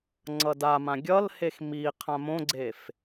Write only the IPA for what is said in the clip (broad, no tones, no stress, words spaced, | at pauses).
ŋ͡ǀʌdamã ɡʲʌlhex mi qʰãmõɡ͡ǀef